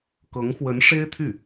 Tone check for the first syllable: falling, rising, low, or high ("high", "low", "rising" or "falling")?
rising